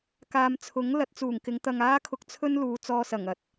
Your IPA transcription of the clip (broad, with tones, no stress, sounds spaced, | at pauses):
k aː˨ m t͡sʰ ʊ˨˥ ŋ l ɐ˨˥ t̚ t͡s uː˨˩ ŋ k ɪ˨˧ ŋ t̪ ɐ˧ ŋ aː˥ kʰ ʊ˧ k̚ t͡sʰ ɵ˥ n l uː˨˧ t͡s ɔː˧ s ɐ˨˩ ŋ ɐ˨˥ t̚